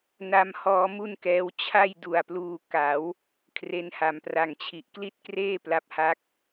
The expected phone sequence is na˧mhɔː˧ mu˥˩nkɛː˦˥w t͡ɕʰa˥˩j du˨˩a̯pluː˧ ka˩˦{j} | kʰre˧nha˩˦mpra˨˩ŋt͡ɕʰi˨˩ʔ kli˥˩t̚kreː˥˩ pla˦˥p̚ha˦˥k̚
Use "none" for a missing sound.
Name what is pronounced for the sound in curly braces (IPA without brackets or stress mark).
w